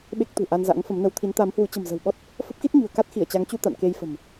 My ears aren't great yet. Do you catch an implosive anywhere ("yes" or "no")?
yes